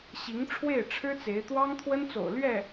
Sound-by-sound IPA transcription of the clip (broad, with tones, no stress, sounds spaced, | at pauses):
ɕ i˧˥ ŋ ʈ͡ʂʰ w e˥˩ ɪ̯ ʈ͡ʂʰ ɻ̩˥ t͡s e˧˥ ɪ̯ t̪ w ɑ˥ ŋ t̪ʰ w ə˥ n t͡s o̰˨˩ ʊ̯ l ɥ ɛ˥˩